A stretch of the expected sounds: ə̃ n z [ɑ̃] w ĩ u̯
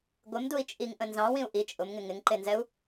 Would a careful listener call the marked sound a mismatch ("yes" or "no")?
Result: no